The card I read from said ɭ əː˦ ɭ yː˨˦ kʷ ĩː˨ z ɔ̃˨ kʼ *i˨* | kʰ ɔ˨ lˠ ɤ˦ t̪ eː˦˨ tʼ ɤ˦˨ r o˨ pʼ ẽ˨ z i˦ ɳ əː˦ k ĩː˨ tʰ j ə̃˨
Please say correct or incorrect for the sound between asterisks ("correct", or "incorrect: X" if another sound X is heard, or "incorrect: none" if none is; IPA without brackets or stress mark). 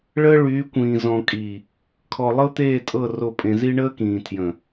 correct